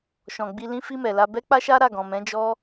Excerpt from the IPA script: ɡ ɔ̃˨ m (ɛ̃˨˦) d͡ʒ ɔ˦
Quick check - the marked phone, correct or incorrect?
correct